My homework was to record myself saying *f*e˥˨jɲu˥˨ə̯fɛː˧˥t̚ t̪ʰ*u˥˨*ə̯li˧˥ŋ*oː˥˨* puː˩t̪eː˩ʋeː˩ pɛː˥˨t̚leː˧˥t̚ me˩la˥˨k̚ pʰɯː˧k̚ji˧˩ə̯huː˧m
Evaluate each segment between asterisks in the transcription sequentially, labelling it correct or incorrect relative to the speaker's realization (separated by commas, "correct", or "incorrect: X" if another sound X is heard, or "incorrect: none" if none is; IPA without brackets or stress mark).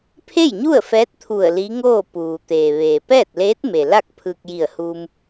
incorrect: pʰ, incorrect: u˧˩, correct